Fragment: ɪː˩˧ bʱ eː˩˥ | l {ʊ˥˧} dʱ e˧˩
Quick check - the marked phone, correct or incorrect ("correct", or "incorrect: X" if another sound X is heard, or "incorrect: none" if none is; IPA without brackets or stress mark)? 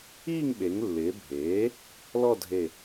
incorrect: ɔ˥˧